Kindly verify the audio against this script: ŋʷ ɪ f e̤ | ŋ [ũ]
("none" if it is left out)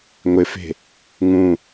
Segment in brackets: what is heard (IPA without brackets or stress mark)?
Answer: ũ